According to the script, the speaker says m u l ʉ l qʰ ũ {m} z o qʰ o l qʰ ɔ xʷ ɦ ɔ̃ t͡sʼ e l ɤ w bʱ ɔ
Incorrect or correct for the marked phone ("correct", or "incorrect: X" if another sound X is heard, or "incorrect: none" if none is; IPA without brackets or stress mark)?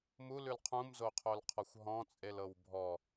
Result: correct